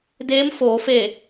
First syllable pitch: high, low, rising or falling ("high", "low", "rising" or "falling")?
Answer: rising